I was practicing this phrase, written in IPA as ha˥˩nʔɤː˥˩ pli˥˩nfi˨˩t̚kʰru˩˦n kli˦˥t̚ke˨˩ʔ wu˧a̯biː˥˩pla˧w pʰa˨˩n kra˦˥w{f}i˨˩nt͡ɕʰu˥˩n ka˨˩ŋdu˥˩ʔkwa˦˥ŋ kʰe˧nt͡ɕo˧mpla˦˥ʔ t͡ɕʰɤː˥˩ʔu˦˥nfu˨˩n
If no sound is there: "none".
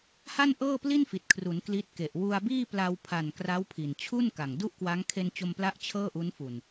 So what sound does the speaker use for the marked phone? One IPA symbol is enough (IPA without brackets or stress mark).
pʰ